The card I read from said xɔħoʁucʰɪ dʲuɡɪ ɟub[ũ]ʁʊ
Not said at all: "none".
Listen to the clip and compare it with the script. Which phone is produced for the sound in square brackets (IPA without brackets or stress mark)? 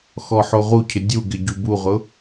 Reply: u